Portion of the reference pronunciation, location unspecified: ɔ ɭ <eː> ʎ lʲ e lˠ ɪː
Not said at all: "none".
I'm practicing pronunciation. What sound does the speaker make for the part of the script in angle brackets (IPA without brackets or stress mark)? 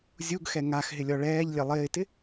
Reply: ɛː